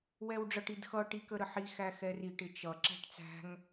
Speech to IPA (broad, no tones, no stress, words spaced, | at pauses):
wɛwɖ͡ʐʌʈ idxʌ ʈikəɾəħi xæxɛriʈ ɪt͡ʃʌ ǁæ̤ʈt͡sæ̤ŋ